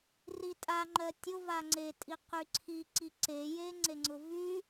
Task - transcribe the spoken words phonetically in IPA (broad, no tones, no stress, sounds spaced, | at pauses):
r i tʼ a ŋ͡ǃ ɜ tʲ ʊ v a ŋ͡ǀ e tʼ i q y ǀʰ i ǀ i ǀ e j e ŋ͡ǀ e ŋ͡ǀ ʊ v y